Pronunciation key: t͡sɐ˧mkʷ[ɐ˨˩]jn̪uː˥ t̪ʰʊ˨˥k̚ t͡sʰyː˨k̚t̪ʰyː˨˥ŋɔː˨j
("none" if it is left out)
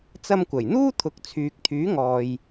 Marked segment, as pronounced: ɐ˨˩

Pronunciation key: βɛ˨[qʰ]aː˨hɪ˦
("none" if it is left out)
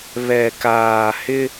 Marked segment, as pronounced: k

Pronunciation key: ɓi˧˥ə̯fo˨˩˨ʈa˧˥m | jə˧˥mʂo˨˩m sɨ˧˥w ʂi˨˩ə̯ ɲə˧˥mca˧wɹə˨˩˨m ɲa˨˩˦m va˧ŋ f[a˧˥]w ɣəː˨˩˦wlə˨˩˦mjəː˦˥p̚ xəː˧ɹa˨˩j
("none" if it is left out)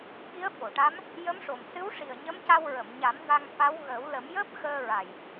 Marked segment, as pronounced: a˧˥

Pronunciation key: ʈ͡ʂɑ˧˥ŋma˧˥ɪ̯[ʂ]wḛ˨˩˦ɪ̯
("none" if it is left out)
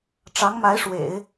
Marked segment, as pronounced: ʂ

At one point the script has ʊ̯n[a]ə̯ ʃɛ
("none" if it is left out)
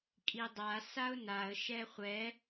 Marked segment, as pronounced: a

